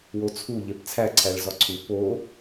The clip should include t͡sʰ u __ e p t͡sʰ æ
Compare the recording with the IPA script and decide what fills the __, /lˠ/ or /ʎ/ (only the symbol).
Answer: ʎ